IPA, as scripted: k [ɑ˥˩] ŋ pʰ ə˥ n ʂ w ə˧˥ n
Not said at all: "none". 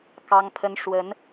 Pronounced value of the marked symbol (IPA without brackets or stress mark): ɑ˥